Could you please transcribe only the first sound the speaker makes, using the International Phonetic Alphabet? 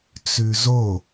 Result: t͡s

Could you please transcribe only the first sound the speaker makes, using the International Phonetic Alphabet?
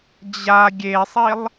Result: d͡ʑ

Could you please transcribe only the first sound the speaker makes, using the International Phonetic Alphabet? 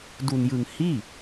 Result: d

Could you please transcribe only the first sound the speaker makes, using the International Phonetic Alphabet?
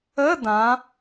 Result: ə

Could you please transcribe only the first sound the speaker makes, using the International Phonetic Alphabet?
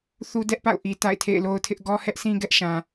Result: θ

